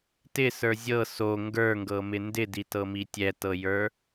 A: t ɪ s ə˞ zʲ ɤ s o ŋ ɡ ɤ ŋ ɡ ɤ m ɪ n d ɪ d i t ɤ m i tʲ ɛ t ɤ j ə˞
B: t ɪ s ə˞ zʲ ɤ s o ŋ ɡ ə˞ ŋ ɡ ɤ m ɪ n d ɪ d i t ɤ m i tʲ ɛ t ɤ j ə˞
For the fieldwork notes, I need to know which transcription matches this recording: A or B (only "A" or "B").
B